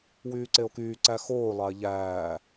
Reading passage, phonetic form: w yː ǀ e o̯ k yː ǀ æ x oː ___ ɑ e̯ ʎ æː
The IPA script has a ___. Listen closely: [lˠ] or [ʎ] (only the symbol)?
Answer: lˠ